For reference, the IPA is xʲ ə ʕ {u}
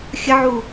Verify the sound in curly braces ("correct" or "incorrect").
correct